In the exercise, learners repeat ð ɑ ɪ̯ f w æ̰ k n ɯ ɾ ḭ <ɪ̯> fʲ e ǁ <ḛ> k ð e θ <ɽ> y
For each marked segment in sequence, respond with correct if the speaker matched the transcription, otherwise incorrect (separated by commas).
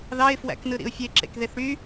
incorrect, correct, correct